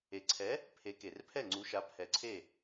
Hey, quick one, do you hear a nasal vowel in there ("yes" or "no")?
no